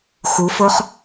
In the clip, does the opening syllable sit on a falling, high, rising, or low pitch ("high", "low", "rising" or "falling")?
rising